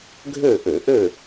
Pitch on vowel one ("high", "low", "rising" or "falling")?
falling